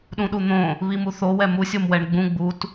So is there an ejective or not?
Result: no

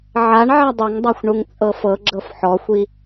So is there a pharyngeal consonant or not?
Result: yes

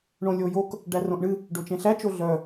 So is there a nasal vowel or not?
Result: yes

